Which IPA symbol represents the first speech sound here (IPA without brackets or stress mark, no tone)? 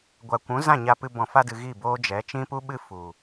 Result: ɡʷ